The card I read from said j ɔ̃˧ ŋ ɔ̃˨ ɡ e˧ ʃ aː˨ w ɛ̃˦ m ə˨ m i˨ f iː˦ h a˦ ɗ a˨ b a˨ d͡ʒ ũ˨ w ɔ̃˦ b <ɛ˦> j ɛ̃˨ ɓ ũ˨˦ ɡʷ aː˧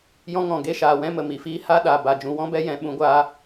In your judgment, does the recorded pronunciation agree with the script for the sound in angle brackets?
yes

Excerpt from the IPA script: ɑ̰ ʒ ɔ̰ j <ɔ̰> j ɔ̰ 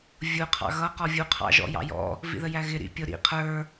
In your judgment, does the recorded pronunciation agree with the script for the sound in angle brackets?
no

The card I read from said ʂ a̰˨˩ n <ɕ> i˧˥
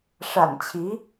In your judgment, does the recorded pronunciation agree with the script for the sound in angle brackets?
no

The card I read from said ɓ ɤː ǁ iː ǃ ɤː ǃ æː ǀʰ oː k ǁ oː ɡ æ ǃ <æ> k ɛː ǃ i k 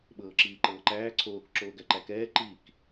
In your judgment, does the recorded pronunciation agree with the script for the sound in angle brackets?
yes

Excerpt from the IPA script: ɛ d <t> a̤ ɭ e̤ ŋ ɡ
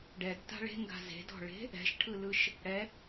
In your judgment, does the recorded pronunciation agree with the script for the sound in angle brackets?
yes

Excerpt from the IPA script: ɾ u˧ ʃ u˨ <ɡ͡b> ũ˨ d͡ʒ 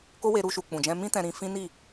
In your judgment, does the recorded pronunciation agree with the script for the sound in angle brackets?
no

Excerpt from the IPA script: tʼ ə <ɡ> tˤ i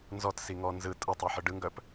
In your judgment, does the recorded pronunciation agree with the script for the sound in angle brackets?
no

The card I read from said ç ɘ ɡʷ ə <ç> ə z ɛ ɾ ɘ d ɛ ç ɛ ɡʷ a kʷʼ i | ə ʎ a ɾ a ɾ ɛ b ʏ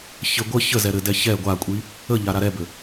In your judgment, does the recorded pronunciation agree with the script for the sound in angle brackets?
yes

